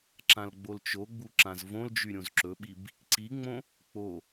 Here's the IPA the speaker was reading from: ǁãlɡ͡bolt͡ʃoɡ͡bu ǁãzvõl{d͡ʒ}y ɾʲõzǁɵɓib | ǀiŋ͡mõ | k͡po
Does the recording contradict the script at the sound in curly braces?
no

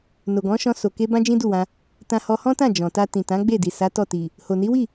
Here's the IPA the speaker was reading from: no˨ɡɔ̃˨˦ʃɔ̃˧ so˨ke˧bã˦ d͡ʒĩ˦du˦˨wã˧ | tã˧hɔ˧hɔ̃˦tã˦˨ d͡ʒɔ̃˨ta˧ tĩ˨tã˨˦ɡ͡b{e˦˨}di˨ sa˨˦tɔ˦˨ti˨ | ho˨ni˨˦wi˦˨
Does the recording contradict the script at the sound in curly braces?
no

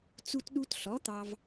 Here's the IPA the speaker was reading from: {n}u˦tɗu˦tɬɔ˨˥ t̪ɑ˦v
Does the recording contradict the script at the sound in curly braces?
yes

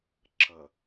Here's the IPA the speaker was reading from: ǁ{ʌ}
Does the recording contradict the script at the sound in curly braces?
no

